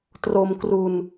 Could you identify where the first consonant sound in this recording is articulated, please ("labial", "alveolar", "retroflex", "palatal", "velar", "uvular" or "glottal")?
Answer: alveolar